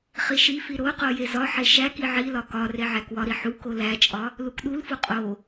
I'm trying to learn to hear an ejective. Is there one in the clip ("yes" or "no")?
yes